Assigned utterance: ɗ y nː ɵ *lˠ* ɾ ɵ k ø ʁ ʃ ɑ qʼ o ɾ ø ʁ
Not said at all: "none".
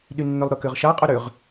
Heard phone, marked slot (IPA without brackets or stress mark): lˠ